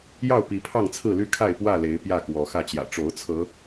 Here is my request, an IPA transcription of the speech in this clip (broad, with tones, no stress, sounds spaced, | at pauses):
j ɑ˥˨ ʊ̯ p i˨˦ pʰ ɑ˥˨ ŋ t͡sʰ ɹ̩˥˨ l y˥˨ kʰ a˥˨ ɪ̯ p w ä˥˨ l e˨˦ ɪ̯ p j ä˥˨ k w ɔ˨˦ x ä˥˨ t͡ɕ j ä̰˨˩ ʈ͡ʂ o˨˦ ʊ̯ t͡sʰ ɤ˨˦